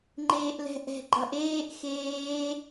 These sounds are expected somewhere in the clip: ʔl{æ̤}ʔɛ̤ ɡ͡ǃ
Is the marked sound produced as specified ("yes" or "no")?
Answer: no